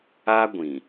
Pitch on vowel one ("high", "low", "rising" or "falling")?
high